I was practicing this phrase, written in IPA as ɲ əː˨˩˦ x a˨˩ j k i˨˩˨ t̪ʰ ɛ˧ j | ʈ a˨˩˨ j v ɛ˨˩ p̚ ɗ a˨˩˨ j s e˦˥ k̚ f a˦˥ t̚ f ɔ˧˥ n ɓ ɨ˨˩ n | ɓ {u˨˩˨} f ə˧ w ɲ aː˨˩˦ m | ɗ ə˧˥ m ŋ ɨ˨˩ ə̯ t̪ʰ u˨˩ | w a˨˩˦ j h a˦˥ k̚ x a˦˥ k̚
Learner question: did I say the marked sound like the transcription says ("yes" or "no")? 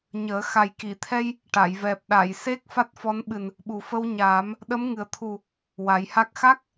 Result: no